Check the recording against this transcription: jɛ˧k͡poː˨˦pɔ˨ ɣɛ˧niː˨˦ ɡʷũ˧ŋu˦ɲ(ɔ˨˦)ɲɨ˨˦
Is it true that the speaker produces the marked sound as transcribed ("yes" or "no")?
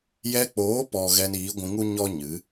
no